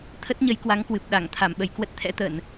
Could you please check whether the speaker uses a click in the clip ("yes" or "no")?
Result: no